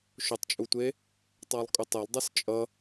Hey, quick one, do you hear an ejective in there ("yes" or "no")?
yes